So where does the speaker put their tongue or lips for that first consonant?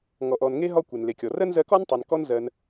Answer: velum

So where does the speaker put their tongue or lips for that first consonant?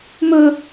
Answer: lips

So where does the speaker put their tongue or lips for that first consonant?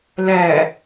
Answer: tongue tip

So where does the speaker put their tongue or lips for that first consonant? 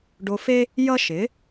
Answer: retroflex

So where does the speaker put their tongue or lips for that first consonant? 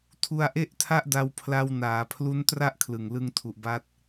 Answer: tongue tip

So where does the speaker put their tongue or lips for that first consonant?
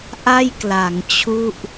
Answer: throat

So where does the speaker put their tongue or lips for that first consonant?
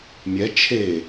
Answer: lips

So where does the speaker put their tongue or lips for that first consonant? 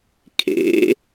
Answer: velum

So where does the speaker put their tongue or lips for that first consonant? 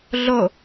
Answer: tongue tip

